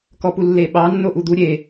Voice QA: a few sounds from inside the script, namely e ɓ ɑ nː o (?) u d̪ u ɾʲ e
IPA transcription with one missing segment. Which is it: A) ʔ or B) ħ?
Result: A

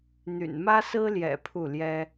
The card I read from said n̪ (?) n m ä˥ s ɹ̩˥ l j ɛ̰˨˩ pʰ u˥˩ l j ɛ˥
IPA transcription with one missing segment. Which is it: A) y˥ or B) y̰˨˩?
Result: B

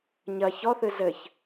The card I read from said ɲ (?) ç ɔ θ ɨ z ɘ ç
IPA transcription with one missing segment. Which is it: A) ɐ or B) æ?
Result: A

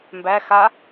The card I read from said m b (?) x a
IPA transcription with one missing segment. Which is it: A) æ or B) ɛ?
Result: A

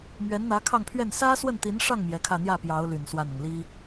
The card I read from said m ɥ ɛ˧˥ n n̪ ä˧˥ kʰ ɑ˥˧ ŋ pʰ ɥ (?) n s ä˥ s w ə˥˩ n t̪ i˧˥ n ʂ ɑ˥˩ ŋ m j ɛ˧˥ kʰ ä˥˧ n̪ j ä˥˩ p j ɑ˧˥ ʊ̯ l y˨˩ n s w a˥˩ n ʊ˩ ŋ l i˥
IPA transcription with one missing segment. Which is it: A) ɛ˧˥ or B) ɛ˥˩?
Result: B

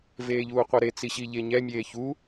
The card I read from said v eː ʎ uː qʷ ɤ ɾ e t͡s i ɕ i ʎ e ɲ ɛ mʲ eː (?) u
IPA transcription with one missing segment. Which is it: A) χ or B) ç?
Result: B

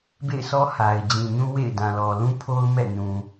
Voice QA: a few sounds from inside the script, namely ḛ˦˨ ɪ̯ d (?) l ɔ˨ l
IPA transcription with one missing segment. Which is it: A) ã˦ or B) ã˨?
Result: B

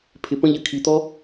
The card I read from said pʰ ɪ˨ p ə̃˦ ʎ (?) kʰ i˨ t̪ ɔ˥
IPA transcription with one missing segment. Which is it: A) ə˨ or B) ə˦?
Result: A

